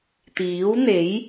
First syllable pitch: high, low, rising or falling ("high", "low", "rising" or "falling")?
rising